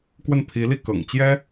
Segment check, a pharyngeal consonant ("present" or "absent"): absent